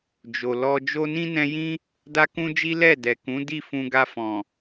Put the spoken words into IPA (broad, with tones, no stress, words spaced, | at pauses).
d͡ʒo˨lɔ˧ d͡ʒo˧nĩ˦nɛ̃˧jĩ˦ | da˦kũ˦d͡ʒi˦ lɛ˦˨dɛ˨kũ˨˦ di˦˨fũ˧ɡa˧fɔ̃˨